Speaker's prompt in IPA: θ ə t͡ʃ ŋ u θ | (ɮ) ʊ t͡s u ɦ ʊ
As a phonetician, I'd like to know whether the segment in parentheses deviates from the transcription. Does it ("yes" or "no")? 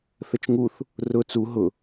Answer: yes